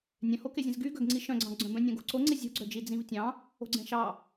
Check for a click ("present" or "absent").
present